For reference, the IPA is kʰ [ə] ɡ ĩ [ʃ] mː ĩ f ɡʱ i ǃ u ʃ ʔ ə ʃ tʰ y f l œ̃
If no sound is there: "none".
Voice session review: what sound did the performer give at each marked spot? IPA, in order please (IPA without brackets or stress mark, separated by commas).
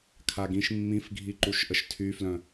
a, ʃ